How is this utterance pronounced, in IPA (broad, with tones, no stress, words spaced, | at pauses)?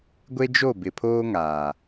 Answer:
ɡʷe˦d͡ʒo˦˨ bɪ˨pʰoː˦ŋaː˨